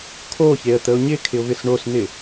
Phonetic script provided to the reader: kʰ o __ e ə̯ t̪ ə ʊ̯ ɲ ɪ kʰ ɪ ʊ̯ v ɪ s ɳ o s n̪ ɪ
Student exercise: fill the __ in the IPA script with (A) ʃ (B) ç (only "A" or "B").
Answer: B